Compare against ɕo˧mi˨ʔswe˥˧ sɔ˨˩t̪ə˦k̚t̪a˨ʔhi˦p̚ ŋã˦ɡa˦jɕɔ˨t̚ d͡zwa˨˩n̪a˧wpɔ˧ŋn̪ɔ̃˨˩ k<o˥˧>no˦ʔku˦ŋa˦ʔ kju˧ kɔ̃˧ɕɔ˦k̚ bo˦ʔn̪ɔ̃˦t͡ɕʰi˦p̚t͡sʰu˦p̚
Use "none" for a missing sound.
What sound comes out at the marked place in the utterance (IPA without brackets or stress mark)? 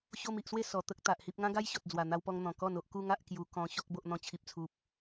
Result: ɔ˥˧